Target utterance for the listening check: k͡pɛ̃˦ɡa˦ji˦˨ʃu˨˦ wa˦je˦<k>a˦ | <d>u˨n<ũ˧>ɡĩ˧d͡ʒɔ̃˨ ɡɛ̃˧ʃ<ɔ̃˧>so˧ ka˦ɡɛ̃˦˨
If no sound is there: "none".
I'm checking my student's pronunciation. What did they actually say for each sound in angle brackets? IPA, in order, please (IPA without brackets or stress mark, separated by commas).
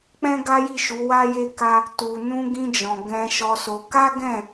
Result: k, t, ũ˧, ɔ˧